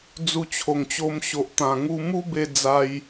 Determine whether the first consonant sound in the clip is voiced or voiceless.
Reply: voiced